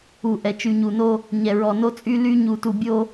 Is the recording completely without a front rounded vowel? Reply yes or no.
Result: no